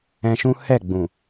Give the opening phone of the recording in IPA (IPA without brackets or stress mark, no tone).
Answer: ɛ̃